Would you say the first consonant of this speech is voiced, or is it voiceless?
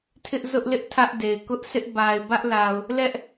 voiceless